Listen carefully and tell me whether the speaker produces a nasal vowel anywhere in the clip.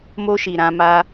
yes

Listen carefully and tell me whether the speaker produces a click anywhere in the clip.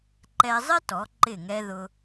yes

